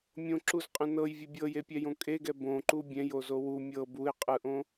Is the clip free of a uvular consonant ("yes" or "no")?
no